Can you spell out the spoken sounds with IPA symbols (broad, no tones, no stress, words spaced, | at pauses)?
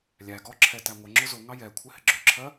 lʲæ ɡɔǁʰɛtæ ŋʷəŋ͡ǁʊ zʊŋɑ jɛkʷʰɪhɪ ɡ͡ǁʊǁʰɜ